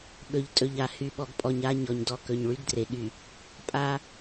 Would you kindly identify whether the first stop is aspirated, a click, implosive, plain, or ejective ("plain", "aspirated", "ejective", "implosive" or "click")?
implosive